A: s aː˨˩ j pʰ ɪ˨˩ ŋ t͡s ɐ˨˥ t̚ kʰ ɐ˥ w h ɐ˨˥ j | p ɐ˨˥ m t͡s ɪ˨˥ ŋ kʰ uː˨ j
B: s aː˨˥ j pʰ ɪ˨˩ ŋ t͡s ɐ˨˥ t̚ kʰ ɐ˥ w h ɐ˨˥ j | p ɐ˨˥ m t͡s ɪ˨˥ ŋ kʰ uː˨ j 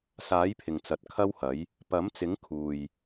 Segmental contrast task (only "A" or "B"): B